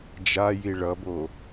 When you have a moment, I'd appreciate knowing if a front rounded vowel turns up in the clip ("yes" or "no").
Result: no